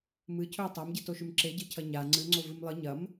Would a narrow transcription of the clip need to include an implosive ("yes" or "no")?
no